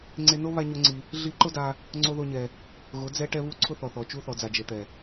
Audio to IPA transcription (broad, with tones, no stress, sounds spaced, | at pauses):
ŋ͡ǀ e˧ n o˦ β a˦ ɲ o˦ ŋ͡ǀ i˧ | ɮ i˧ ǃ ʊ˦ d a˧ | ŋ͡ǀ o˦ ð o˦ ɲ ɛ˧ | ɣ ʊ˨˦ d͡z ɛ˦ ʈ ɛ˦ β u˦ ǀʰ ʊ˦ θ ɔ˨ θ ɔ˨ t͡ʃ u˧ θ ɔ˨ d͡z a˨ d͡ʒ e˨ t̪ ɛ˨